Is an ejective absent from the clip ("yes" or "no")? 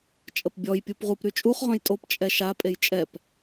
no